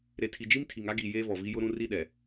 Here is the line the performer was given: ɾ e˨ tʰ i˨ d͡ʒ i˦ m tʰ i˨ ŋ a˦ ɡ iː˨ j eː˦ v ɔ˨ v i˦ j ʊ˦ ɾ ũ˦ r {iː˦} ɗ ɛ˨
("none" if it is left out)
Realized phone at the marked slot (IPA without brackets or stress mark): i˦